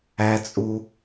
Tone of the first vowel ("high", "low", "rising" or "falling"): high